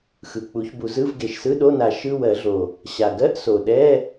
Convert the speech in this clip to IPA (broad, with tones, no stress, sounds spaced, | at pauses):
x ɯ˨˩ k͡p u˨˩˦ ç b u˨˩˦ z ɯ˧˥˧ v ɡ e˨˩ ʃ s ɯ˧˥˧ ɗ o˧˥˧ n a˨˩˦ ʃ ɯ˧˥˧ w ɜ˨˩˦ ɮ o˨˩ | ɕ a˨˩ ɡ ɜ˧˥˧ ʔ s o˨˩ ɗ ɛ˧˥˧